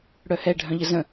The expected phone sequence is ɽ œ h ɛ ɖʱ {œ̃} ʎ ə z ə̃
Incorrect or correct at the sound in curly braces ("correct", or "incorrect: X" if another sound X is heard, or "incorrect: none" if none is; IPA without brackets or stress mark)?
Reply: correct